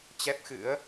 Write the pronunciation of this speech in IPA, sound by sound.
t͡ɕ ɛ˦˥ p̚ x ɨ̰˧˥ ə̯

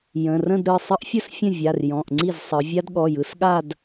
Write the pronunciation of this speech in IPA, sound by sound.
j ə̃˩˧˩ r ə̃˥˧ d ɾ ɯ˩˧˩ sˤ ə˦˥ ʔ fʲ ə˥˧ s fʲ ə̃˥˩ vʲ a˩˧˩ r j ɔ̃˩˧˩ ʔ ŋ͡ǀ i˥˩ z sˤ ɯ˩˧ vʲ a˦˥ d ɠ ɔ˩˧˩ j ɯ˩˧ s ɠ a˥˧ d

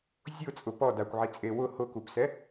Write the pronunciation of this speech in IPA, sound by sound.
zʲ ʊ t͡sʼ ʊ p ɔ d a kʷ ʕ i t͡sʼ e w ʊ h ʊ k u p s ɛ

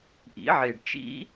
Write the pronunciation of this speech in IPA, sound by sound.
ʔ ḭ˨˥ ʕ e˨˩ ɖ t͡ʃ ḭ˦˥

